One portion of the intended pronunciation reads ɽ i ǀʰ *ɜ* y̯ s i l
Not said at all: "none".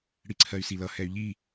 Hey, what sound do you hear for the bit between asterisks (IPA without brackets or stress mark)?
ɜ